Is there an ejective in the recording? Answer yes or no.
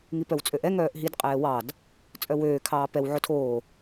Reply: yes